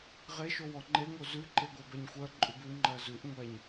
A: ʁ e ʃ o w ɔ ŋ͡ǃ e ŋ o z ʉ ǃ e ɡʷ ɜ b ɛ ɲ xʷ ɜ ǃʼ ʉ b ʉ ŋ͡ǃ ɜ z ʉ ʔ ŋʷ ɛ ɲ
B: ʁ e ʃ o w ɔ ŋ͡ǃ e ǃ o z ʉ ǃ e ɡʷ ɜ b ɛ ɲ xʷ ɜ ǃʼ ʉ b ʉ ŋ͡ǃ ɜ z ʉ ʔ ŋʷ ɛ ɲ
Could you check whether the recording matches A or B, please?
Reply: A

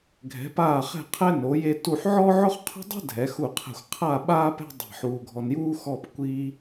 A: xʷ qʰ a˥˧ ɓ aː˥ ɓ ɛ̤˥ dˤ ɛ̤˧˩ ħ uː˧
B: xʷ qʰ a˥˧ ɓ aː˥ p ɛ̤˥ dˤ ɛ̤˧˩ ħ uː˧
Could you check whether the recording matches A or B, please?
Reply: B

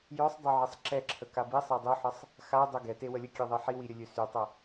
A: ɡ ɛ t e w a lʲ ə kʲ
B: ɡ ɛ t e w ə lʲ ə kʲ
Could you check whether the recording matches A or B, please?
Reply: B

